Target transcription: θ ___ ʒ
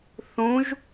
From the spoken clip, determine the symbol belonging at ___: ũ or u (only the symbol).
ũ